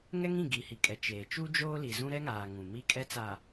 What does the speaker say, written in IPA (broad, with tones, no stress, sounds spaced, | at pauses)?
ŋ ɛ˦ ŋ ĩ˦˨ ɡ iː˨ h i˨ kʼ ɛ˨ t͡ʃ eː˨ t͡ʃ u˦ d͡ʒ oː˦ l i˨ z ũ˦ ɾ ɛ˦ ŋ aː˨ ŋ ũ˨ m i˦ kʼ ɛ˦ t͡s a˨